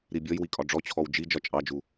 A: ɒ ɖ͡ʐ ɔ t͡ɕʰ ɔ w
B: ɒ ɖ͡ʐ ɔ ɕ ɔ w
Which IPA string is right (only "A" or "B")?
A